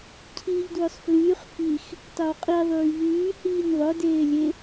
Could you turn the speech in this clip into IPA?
cʰ iː ʎ d w ø sˤ f l yː χ f i x | tˤ ø w qʼ i ðˤ yː ʎ yː h iː nʲ ðˤ œ d eː lʲ e

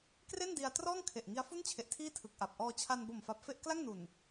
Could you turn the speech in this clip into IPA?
k r e˥˩ n d i˧ a̯ t r ɔː˥˩ ŋ kʰ e˨˩ ʔ ŋ i˦˥ a̯ f u˥˩ n t͡ɕʰ e˨˩ ʔ tʰ iː˥˩ tʰ ɯ˨˩ k̚ ʔ a˨˩ p̚ ʔ ɔː˧ t͡ɕʰ a˧ n b o˨˩ m f a˨˩ p̚ f e˥˩ ʔ k l a˥˩ ŋ n u˨˩ n

